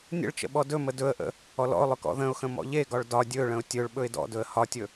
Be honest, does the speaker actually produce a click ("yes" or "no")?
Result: no